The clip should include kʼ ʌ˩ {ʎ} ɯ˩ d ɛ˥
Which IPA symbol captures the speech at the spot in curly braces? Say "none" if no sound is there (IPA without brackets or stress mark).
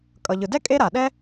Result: ʎ